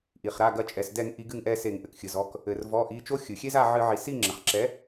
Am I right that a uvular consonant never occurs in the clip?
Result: no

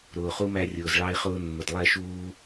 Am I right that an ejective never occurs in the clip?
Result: yes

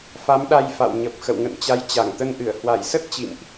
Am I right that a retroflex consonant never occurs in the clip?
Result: yes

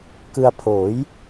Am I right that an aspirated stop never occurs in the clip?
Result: no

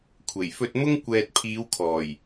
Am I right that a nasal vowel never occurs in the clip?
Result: yes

